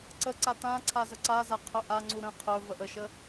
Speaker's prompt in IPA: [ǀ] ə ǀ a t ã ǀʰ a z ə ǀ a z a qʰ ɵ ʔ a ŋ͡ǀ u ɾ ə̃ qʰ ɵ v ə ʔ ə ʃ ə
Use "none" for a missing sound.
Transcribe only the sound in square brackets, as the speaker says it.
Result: ǀ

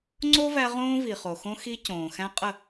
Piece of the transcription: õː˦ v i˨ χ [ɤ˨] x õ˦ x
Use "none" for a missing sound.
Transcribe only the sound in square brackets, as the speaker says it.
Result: o˨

